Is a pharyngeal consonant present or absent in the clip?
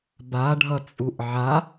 present